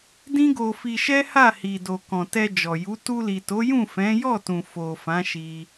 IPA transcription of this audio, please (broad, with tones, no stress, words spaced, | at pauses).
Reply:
dĩ˦ɡo˧fi˧ʃɛ˦ ha˦˨hi˨ do˨kɔ̃˨tɛ˧ d͡ʒɔ˨ju˨˦ tu˧li˨to˨˦jũ˦˨ fɛ̃˨˦jɔ˦˨tũ˨ fo˨fã˨˦ʃi˧